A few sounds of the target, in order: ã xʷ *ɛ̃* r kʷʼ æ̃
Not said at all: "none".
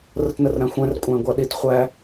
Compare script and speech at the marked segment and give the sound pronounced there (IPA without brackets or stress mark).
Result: ɛ̃